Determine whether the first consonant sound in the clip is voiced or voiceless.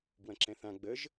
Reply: voiced